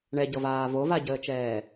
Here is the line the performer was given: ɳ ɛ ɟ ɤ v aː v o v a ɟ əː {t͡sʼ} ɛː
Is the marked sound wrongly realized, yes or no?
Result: yes